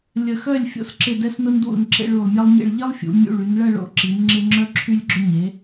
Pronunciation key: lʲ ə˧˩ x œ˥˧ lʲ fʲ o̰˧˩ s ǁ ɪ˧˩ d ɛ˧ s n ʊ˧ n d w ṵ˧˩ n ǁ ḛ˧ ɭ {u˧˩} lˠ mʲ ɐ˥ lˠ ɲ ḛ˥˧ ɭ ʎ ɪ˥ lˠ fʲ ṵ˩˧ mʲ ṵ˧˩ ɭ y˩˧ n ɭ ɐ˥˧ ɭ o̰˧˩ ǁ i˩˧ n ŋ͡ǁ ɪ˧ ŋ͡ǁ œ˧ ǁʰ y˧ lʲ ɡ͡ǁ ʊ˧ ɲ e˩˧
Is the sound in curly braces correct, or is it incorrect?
correct